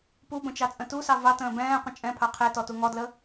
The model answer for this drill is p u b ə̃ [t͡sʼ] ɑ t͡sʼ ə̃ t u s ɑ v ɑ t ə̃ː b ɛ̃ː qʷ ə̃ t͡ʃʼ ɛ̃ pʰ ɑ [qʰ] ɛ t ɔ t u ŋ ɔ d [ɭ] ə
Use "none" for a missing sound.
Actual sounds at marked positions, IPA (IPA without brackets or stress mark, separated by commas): t͡ʃ, qʰ, l